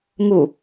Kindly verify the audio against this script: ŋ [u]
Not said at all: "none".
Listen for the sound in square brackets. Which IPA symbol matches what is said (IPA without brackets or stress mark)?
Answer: u